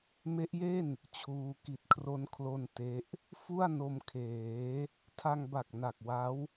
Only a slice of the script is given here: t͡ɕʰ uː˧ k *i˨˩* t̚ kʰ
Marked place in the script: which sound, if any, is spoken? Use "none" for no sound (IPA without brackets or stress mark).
i˨˩